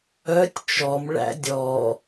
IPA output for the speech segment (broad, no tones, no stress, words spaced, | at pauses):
œtʲ t͡ʃɔmɭæ̰ dʲɔ